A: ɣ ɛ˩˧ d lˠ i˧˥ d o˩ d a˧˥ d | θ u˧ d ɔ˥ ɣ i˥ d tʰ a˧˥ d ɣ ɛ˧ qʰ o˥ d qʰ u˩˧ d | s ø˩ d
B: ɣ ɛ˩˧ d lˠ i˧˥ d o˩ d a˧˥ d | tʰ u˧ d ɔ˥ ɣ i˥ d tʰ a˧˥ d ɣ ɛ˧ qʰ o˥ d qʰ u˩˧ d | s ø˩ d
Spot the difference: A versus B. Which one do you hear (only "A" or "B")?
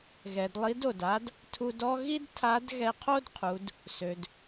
B